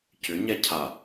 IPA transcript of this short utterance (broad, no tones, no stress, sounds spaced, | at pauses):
c ʏ ɲ ɛ cʰ a